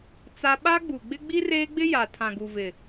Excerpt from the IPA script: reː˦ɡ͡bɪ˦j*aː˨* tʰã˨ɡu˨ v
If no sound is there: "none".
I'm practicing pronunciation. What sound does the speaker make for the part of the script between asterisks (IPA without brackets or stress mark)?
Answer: a˨